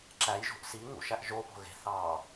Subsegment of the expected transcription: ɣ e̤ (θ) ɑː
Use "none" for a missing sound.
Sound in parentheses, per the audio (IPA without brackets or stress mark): θ